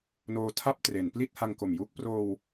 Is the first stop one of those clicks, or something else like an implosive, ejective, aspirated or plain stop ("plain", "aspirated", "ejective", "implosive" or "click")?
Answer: aspirated